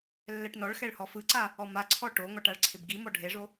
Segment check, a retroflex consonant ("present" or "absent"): present